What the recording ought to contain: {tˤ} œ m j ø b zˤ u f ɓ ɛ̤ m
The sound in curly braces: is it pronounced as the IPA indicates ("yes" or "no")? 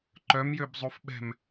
no